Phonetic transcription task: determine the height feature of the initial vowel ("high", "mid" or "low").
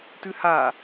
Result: high